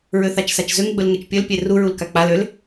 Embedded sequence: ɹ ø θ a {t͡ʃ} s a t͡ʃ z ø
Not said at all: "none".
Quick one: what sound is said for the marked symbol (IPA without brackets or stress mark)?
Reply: t͡ʃ